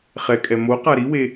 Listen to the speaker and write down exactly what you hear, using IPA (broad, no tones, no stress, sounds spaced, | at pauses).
χ ɛ kʼ ɛ m o q a ɾ i w e